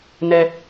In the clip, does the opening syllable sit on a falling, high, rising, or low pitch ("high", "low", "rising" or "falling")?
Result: low